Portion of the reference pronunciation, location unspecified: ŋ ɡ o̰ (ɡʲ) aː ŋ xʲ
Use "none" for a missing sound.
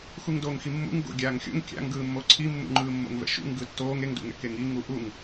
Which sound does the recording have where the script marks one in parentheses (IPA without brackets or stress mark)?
ɡʲ